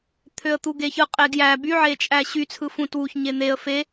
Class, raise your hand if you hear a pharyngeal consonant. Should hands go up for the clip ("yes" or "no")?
yes